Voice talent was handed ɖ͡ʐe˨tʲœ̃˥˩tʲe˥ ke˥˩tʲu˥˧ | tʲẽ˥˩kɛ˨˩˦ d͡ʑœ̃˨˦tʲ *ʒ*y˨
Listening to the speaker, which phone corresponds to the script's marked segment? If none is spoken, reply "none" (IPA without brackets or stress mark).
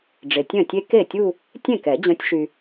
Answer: ʃ